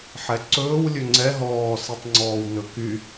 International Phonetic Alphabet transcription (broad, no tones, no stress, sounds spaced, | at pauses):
ħ ɛ ǀ ɵː w lʲ ɵ ŋ͡ǀ ɛ ɦ ɔː s i tˤ ŋ͡ǀ ɔː w n ɵ k y